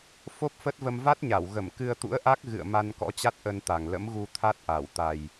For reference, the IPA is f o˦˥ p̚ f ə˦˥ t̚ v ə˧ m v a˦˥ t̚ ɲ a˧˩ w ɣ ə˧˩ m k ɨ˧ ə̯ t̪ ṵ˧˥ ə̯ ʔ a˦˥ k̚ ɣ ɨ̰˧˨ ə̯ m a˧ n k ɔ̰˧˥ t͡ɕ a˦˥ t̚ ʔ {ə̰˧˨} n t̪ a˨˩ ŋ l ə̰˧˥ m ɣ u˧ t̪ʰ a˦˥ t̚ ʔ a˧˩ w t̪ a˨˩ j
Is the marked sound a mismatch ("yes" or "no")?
yes